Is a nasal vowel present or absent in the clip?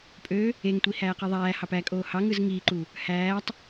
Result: absent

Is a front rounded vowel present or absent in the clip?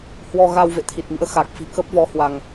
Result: absent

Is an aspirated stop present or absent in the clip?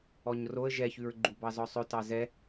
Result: absent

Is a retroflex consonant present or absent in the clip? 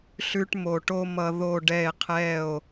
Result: present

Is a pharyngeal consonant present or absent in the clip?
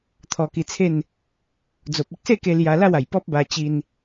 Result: absent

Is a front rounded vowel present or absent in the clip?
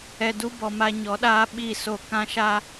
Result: absent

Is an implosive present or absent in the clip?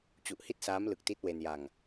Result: absent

